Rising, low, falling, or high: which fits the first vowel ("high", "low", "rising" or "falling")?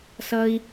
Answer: high